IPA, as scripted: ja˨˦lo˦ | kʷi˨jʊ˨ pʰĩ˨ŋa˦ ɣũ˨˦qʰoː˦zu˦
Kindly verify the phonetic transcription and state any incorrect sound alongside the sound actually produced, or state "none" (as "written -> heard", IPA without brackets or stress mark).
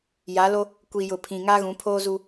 qʰ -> pʰ